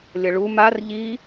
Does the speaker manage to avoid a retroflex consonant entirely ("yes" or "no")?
no